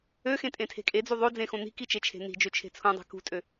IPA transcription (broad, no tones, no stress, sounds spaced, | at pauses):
ø x ẽ tʼ ẽ tʰ e̤ kʼ e d͡z u ðˤ o d͡z ẽ x õ n̪ i̤ k i t͡ʃ e t͡ʃʰ e̤ n̪ i̤ d͡ʒ ø t͡ʃʰ e̤ t͡sʰ ũ dˤ i̤ k ṳ tʼ ø